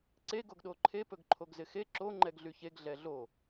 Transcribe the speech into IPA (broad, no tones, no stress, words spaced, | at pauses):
ǀe ɡoɡɗoǃʰe pɵɡǃʰoɡzɪxe ǁo ŋ͡ǃɛɡɮyçeɡ ɮɛɮo